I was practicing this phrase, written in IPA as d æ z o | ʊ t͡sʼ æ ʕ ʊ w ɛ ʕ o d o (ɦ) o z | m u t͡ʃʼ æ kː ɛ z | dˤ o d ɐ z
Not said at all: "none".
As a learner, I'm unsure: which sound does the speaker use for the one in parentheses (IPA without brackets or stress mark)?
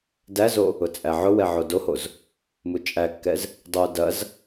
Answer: h